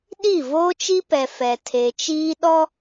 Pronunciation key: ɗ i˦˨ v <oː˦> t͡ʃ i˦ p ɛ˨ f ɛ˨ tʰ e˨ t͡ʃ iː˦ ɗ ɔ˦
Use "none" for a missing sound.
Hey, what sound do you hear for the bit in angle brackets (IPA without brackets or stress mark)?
oː˦